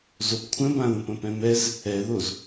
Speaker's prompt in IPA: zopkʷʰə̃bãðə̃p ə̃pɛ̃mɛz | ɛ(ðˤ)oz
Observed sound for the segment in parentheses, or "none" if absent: ð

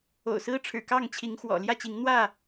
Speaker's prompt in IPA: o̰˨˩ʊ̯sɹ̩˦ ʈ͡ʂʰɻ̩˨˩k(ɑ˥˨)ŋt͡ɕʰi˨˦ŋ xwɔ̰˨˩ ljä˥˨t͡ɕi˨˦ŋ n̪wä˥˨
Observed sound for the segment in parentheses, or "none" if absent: ɑ˥˨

